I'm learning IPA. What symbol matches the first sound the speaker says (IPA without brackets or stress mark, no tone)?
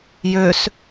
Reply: j